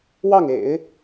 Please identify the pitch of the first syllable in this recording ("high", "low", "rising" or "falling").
falling